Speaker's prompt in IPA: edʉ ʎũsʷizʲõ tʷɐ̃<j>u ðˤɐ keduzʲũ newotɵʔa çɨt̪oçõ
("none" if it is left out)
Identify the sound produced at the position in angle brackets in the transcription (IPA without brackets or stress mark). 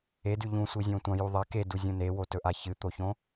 j